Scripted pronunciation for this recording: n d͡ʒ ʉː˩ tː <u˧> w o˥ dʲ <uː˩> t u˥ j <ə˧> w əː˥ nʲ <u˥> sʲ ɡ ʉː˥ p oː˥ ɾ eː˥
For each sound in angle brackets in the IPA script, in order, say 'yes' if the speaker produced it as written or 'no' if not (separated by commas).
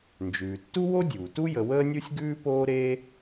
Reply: no, yes, yes, yes